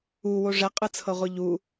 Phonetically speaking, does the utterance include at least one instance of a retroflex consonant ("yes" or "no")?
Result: yes